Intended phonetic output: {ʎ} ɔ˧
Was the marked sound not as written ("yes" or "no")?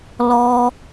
yes